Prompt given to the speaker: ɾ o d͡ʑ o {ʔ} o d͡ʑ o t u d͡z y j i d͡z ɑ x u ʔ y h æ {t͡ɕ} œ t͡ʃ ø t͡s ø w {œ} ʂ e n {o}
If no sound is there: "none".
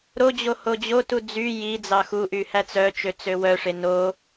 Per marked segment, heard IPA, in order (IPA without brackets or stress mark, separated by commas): h, t͡s, œ, o